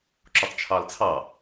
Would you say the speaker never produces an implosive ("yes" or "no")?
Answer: yes